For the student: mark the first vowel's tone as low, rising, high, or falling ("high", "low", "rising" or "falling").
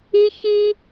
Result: high